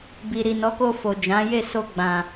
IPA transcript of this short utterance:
b i˨ ɾ i˨ n ɔ˨˦ k o˧ f o˨ d͡ʒ ã˨˦ j e˦˨ s o˧ ɡ͡b ã˨

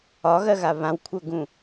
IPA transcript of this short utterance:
ɒ ɣ ɜ ɣ a β ã w kʷʰ œ ɡ ũ

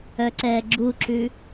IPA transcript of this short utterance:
œ ǀ ɛː ɡ͡ǁ u ǁ ʉ

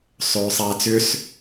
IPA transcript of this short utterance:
sˤ øː sˤ aː t͡s ʏ s

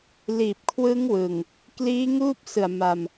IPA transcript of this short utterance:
l iː˨˩ p̚ kʰ w ɯ˦˥ ŋ w ɯ˨˩ ŋ | k l iː˦˥ ŋ uː˥˩ p̚ s ɯ˨˩ a̯ m a˧ m

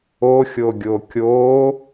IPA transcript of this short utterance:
o xʲ o ɡʲ o kʲ o

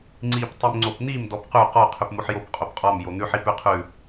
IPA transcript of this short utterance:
ŋ͡ǀ i p tˤ i m ŋ͡ǀ o p n̪ i m d ɔ p q ʉ q ɔ qʰ ʉ p m o ħ j o p qʼ o p qʼ ɔ m j o n̪ ʉ ħ i p ʉ qʰ ʉ

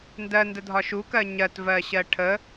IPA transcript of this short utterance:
n d ɜ n d ə dʱ ɒ ʃ u k ɜ ɲ ɜ t v ɜ ɕ ɜ ʈʰ ə

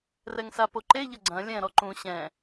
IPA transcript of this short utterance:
r ɛ ŋ s a p o ǃ e ʎ ɐ ɡ͡ǀ ɐ̃ lʲ ɛ̃ ɾ ɔ ǃ ũ ɕ ɛ̃

